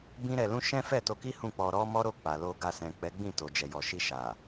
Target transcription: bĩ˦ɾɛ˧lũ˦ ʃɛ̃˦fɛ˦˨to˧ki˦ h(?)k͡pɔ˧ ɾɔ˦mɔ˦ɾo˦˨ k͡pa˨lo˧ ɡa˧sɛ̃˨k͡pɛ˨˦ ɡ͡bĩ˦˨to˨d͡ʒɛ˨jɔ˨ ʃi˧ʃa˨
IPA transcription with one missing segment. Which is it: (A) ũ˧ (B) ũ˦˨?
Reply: B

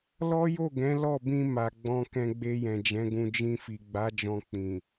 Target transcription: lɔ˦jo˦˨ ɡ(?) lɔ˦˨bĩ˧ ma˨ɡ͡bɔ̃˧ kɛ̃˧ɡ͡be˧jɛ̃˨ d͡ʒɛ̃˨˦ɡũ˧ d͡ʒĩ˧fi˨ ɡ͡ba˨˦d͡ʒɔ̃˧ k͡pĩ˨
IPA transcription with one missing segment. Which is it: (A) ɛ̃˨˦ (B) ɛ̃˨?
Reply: A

